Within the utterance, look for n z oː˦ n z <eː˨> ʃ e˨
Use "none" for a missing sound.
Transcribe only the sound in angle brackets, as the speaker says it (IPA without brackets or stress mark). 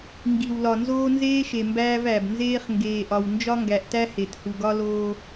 eː˦